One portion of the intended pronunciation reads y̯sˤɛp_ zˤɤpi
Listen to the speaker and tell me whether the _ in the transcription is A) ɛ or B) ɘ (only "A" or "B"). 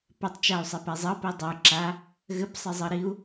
A